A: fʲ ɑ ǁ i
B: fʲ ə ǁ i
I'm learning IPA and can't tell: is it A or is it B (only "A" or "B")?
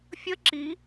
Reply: B